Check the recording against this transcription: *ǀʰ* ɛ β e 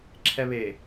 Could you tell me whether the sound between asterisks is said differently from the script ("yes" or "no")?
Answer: yes